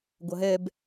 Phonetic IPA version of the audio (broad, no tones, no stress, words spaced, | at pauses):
ɡʷʌɦɛb